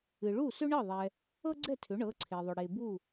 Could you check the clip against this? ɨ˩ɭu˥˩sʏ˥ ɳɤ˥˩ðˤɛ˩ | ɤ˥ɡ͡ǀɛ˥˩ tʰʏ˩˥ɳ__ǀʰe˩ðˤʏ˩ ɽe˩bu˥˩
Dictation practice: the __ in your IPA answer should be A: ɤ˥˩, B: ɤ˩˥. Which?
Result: B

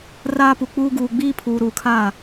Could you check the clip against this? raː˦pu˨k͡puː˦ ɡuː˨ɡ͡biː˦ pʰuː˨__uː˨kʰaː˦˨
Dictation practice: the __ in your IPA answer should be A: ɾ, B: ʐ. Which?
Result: A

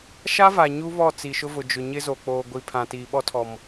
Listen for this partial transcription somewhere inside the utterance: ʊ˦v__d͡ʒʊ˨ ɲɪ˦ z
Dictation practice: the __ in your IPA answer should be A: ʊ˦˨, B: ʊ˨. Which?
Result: B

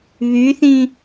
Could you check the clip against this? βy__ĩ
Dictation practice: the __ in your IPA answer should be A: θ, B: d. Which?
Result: A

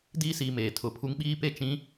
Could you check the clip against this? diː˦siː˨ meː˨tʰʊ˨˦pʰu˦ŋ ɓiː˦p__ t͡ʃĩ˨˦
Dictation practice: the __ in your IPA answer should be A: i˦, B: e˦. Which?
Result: B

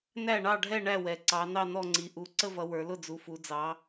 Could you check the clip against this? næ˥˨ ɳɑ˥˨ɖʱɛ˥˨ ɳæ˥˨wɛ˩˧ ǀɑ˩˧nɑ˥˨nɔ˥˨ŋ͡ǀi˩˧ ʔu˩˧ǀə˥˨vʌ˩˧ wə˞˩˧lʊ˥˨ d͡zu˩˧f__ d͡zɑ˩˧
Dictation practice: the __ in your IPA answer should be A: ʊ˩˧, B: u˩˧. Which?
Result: B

